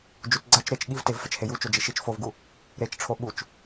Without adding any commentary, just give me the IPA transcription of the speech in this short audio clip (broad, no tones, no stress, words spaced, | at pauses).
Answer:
d͡ʒut͡sɡ͡ǀat͡ʃ ɾet͡ʃ ɠivtev fɛt͡ʃheju t͡ʃod͡ʒiʃit͡ʃ fovɡu | ɾet͡ʃʈ͡ʂʰo ɓut͡ʃ